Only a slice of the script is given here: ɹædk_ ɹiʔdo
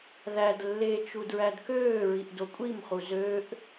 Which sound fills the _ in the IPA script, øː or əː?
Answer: øː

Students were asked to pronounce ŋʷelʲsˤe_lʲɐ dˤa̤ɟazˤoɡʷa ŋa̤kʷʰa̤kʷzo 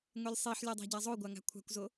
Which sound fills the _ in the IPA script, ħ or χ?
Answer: ħ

